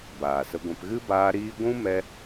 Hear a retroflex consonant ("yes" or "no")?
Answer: no